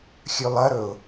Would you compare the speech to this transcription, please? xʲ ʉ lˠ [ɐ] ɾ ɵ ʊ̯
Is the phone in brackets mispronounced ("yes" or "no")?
no